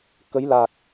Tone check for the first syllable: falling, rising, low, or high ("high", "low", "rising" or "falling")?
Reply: rising